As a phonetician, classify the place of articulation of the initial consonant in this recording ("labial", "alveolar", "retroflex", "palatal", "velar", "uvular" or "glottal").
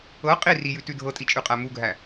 uvular